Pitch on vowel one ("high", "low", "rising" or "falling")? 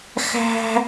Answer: high